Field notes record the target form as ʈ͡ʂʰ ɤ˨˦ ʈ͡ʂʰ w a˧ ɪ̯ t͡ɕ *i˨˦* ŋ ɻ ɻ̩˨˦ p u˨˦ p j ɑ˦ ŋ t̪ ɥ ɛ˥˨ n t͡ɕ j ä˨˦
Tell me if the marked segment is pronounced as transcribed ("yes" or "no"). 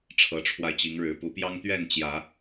yes